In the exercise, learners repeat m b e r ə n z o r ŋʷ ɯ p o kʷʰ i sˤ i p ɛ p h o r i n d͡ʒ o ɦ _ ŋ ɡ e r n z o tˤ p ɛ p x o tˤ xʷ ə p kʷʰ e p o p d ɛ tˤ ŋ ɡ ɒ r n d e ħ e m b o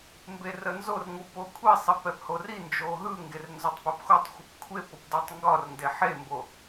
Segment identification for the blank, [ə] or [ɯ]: ɯ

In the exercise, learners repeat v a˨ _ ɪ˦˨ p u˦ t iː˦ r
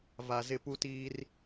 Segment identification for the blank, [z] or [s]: z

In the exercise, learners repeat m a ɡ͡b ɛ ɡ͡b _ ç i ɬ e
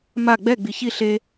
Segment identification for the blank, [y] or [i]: i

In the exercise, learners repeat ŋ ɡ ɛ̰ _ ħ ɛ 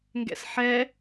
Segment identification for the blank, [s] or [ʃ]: s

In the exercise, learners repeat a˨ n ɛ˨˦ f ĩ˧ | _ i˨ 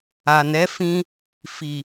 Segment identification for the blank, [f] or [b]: f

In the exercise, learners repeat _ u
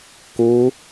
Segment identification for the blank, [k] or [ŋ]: k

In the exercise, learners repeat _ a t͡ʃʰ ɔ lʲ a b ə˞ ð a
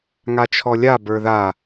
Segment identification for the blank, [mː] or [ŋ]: ŋ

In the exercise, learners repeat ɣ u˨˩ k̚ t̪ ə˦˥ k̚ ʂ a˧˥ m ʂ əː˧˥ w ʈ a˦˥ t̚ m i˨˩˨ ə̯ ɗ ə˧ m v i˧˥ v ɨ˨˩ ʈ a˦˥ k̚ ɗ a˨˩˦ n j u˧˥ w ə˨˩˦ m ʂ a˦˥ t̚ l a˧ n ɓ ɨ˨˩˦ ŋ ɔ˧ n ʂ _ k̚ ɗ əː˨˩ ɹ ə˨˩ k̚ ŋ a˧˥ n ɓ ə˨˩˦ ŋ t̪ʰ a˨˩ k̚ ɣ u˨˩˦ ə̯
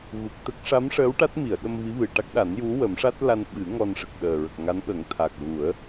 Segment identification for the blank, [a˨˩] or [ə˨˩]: ə˨˩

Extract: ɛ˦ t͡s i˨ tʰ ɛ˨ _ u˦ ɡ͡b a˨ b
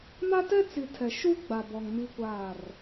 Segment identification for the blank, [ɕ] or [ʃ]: ʃ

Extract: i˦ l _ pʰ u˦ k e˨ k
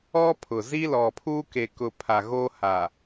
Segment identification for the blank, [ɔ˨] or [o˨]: ɔ˨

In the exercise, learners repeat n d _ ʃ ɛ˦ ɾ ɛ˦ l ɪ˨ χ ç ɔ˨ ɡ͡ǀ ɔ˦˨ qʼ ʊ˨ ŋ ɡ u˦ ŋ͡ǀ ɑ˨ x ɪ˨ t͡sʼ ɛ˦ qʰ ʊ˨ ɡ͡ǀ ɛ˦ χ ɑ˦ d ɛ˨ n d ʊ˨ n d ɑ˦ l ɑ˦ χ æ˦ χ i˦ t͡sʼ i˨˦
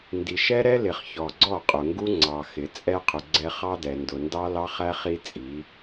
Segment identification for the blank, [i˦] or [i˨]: i˨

